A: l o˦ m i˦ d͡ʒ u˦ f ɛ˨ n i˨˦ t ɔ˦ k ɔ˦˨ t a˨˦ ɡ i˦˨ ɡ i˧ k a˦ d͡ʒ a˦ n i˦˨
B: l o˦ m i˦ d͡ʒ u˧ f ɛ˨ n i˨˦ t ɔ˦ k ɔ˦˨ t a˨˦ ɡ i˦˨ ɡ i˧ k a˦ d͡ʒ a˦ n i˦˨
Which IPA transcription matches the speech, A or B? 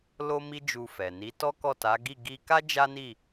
B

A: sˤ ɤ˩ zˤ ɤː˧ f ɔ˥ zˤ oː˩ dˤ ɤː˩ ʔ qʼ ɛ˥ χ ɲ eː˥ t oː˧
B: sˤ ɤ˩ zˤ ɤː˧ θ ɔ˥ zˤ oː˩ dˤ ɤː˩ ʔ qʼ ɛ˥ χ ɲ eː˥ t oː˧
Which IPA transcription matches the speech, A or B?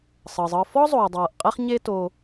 A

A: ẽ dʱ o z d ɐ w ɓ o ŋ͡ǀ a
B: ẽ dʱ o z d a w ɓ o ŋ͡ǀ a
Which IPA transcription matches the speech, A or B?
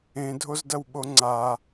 A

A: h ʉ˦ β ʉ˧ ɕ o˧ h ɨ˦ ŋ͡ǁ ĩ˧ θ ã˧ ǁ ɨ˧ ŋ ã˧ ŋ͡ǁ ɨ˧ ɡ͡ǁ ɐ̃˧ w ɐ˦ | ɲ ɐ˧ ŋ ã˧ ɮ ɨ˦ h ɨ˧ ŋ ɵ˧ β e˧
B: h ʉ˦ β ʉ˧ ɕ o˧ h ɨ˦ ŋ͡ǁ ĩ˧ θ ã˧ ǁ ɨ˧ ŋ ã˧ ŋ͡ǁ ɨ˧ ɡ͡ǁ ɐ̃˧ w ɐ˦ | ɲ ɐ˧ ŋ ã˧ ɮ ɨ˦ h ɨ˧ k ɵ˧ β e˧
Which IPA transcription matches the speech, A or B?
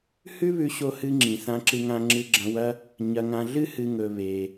A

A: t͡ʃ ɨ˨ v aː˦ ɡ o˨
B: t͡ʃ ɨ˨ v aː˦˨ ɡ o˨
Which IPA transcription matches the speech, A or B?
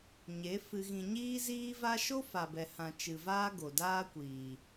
A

